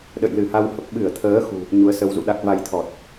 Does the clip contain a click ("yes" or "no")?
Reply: no